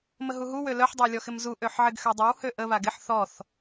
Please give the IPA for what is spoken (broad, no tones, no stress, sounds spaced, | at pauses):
m ə ɦ u ɦ u w ø l œ ħ dˤ ə w lʲ ɔ x ɪ m z u ʔ ø ħ ʕ ɪ ɡ x ø dˤ ə w h ø ʔ ə β a ɡ ɪ ħ θ ɔ θ